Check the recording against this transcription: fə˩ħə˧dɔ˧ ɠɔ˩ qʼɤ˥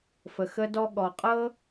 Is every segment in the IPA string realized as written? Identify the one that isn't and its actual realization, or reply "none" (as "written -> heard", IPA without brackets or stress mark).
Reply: ħ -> x